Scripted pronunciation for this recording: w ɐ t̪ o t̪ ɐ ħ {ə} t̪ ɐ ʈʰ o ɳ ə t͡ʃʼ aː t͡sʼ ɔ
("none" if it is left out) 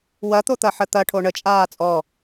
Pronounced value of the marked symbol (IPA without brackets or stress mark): ə